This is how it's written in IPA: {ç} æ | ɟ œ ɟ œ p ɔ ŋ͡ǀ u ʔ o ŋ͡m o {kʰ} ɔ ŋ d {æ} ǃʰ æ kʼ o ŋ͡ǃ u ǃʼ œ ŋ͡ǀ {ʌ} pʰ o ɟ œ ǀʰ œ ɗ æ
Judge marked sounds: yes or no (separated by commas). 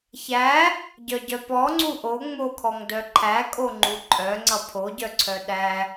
yes, yes, no, yes